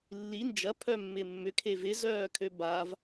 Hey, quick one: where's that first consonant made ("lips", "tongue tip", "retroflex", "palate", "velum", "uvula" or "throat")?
tongue tip